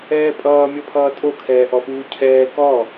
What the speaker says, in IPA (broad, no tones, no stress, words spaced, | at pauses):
ɛːpʼʌː mʲɔpʰʌːtʼo kʰɛːʔɔfuːcʰɛː kɔ